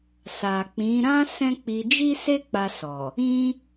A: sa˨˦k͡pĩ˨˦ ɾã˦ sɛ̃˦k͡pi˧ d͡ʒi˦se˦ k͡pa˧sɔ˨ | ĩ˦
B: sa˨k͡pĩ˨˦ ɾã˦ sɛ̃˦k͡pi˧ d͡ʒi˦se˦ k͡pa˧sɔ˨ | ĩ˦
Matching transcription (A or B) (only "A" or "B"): B